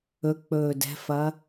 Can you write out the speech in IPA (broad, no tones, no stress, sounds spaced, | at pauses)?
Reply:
ɵ k͡p ɵː d ɛ̤ f ɐ